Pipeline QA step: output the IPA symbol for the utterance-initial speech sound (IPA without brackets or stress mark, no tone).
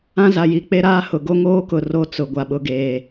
ã